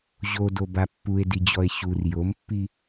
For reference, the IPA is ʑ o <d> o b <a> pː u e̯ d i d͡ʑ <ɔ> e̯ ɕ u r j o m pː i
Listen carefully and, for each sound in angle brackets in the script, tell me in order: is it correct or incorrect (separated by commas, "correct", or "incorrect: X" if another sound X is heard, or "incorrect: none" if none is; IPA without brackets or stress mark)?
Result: correct, correct, correct